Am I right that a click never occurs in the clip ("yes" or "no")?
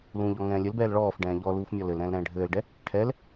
yes